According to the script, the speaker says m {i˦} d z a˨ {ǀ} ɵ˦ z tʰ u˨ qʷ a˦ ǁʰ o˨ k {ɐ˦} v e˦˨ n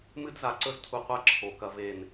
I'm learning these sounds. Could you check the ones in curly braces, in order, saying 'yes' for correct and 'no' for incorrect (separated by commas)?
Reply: no, yes, yes